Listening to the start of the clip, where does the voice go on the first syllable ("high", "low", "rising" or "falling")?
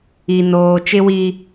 low